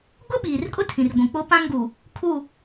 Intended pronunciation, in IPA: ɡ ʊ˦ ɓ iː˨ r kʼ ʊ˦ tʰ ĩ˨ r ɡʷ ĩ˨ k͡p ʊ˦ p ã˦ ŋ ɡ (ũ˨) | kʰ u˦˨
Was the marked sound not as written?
yes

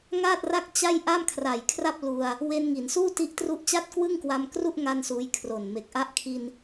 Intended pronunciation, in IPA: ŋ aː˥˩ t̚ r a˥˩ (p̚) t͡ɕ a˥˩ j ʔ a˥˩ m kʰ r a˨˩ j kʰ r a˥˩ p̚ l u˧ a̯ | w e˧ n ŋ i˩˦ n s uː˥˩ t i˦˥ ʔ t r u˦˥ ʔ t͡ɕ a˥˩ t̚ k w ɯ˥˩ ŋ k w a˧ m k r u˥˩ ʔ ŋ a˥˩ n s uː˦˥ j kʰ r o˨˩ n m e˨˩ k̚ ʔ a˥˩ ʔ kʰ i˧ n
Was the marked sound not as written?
yes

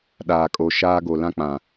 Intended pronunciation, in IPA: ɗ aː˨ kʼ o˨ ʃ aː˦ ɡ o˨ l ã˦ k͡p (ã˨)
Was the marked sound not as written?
no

